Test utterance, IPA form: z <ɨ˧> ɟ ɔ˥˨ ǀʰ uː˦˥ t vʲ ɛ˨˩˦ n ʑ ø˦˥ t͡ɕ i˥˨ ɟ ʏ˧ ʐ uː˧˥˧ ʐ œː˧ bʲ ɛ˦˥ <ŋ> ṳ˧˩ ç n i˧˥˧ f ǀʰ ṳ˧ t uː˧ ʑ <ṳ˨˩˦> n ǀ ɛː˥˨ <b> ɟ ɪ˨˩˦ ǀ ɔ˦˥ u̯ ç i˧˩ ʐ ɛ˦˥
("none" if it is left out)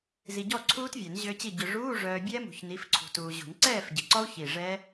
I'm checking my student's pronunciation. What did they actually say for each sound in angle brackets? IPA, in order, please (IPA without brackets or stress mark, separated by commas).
i˧, m, ṳ˨˩˦, f